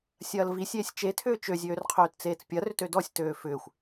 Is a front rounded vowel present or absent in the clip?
present